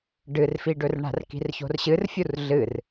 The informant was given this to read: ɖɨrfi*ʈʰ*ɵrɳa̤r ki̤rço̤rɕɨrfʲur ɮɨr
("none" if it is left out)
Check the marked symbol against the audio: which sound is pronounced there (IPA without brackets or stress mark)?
ɖ